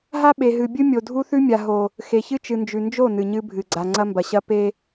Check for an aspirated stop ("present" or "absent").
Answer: absent